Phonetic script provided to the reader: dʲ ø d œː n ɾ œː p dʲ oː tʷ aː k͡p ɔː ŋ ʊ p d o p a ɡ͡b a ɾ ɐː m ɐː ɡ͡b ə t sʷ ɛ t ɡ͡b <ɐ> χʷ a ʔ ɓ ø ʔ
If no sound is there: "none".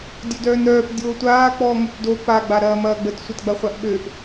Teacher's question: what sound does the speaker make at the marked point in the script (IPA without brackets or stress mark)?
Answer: ɐ